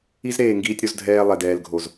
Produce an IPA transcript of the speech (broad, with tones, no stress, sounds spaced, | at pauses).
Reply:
i˦ z ɾ eː˨ ŋ ɡ iː˧ tʲ ɾ o˧ z dʱ ɛː˧ lˠ ɛ˨ d ɛː˨ l ɡʱ o˨ z